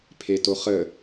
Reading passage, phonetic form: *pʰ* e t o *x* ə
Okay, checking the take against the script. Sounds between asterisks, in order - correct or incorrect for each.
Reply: correct, incorrect

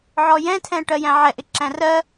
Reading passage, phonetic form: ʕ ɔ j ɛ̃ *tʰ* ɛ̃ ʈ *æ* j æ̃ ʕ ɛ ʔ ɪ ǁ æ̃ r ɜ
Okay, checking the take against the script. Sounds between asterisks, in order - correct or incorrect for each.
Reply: correct, incorrect

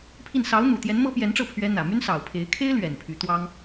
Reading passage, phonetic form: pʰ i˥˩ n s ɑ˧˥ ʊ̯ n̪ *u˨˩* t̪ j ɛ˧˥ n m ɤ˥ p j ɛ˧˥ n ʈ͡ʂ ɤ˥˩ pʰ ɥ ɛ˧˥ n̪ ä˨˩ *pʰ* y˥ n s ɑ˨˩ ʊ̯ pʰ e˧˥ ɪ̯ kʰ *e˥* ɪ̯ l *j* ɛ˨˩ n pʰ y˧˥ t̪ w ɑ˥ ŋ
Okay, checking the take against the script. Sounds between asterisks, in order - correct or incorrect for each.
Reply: correct, incorrect, correct, incorrect

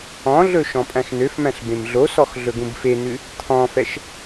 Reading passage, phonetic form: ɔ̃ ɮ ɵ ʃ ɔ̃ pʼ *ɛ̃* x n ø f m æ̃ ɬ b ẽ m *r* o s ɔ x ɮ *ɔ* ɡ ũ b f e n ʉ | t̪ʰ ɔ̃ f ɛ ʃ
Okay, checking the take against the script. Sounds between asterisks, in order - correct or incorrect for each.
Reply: incorrect, incorrect, incorrect

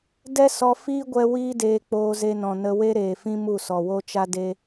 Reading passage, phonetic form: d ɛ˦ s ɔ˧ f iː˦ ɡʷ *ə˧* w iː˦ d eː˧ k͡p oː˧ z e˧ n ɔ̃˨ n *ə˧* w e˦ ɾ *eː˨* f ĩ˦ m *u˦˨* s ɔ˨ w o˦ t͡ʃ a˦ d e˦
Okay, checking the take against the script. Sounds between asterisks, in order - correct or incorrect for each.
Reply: incorrect, correct, correct, correct

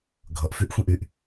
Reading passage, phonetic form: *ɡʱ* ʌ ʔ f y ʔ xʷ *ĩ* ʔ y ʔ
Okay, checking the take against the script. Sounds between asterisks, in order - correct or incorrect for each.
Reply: correct, correct

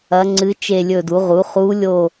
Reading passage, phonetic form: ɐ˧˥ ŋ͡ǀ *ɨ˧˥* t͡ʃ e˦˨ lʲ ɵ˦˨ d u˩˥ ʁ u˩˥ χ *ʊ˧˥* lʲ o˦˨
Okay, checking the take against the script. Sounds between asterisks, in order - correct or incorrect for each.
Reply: correct, incorrect

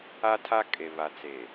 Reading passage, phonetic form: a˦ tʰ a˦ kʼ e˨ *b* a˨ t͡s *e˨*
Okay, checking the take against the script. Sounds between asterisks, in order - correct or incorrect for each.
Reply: incorrect, correct

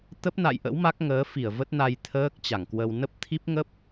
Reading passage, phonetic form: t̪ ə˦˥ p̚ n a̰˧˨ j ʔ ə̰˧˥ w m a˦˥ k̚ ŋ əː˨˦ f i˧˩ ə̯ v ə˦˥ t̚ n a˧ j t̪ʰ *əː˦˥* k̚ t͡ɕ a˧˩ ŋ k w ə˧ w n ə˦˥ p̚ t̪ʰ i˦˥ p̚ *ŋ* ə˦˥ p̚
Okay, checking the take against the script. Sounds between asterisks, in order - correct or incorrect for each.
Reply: correct, correct

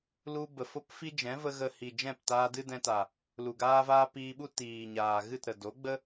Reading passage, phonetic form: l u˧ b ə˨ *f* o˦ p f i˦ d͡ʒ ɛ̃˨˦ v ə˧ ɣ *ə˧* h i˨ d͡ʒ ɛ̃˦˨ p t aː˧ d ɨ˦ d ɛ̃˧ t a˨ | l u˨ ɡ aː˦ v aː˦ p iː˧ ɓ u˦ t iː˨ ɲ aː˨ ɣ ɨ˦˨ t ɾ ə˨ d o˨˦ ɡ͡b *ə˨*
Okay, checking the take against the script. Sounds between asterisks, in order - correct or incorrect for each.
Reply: correct, correct, incorrect

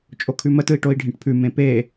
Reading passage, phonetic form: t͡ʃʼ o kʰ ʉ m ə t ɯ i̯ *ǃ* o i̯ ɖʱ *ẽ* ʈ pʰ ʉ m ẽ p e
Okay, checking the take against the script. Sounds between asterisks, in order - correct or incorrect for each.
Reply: incorrect, incorrect

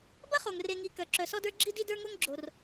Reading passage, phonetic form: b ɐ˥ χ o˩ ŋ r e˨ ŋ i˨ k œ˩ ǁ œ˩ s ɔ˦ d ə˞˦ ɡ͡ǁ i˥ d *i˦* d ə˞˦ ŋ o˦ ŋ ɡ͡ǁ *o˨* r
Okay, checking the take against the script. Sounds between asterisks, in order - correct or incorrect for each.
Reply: correct, incorrect

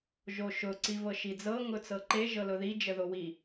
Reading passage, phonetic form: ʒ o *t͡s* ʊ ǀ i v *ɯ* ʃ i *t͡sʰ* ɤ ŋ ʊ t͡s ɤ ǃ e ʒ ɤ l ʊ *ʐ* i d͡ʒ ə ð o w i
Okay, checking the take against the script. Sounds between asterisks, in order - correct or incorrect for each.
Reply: incorrect, incorrect, incorrect, incorrect

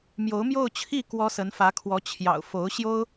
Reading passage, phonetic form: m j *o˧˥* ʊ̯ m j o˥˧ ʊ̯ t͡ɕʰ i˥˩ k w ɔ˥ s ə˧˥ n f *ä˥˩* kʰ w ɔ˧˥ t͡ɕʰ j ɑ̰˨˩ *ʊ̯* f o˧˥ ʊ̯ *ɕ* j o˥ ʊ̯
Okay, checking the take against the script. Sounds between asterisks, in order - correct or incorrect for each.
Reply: correct, incorrect, correct, correct

